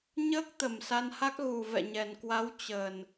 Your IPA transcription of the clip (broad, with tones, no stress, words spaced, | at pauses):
ɲəː˦˥k̚t̪ə˨˩m sa˧nha˦˥k̚ ɣu˨˩ vɛ̰˧˨ɲɛ˨˩nkwa˨˦w t͡ɕəː˨˩n